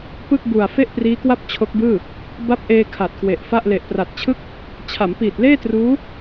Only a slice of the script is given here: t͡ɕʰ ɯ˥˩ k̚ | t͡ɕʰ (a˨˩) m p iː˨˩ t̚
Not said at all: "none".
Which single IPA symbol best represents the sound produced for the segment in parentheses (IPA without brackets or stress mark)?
a˩˦